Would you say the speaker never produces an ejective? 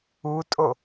no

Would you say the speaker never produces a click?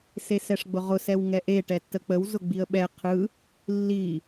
yes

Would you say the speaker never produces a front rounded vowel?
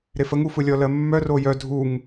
no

